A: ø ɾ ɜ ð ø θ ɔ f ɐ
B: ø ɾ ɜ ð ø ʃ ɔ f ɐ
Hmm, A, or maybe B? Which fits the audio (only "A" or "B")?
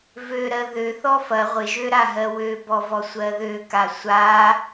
A